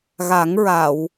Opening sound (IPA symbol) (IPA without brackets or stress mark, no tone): ɣ